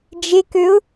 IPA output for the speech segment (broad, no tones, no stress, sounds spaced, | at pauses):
d͡ʒ e k ø ʊ̯